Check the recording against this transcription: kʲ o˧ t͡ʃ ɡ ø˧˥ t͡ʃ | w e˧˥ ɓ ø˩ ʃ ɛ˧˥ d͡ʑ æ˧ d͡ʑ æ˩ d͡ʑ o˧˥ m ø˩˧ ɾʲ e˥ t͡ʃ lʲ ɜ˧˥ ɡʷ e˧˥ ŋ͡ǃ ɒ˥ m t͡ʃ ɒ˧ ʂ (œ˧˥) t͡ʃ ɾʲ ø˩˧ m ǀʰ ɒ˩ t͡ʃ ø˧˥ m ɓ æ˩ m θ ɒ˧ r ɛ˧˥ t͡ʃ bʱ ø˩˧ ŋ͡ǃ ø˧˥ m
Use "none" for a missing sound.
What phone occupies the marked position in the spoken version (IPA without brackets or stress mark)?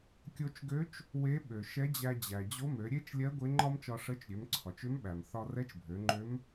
ə˧˥